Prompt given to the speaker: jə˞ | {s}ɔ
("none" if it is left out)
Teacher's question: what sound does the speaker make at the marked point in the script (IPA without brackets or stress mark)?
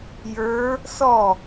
s